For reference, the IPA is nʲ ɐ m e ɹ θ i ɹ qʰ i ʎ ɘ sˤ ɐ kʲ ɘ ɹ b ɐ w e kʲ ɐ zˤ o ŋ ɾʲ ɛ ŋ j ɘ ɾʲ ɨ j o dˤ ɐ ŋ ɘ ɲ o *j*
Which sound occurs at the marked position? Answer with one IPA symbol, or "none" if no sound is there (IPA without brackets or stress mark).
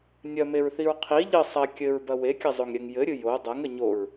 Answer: ɹ